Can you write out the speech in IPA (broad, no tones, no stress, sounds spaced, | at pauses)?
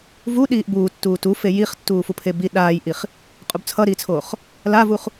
v u ɗ iː ʔ b uː tː uː t u f e j i χ tː uː f u pʰ e b i ɗ aː j ʔ i χ | qʼ u b t͡sʰ ʌ ɾ iː t͡sʰ oː χ | l a v u χ